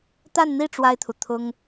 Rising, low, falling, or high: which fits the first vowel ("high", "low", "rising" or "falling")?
falling